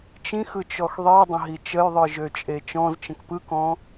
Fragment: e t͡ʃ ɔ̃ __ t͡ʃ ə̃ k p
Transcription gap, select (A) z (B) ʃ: A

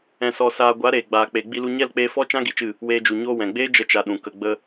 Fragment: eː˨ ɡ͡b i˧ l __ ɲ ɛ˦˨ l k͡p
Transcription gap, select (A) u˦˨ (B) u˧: B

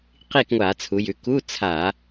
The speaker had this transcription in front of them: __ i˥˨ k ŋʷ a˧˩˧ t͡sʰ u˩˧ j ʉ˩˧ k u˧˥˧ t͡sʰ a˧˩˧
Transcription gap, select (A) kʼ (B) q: B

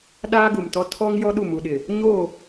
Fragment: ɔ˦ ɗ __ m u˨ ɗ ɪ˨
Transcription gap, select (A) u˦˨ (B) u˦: A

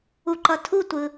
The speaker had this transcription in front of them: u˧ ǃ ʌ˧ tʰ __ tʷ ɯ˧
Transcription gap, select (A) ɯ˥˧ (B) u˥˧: B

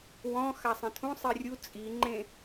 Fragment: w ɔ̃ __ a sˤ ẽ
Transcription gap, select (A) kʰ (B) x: B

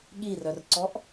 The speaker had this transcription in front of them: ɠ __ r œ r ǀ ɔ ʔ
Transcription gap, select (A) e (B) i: B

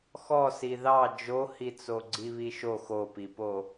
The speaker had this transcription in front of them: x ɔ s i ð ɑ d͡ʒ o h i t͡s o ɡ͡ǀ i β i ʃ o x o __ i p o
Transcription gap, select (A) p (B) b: A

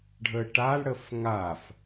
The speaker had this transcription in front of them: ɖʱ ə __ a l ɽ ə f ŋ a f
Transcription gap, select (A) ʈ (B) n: A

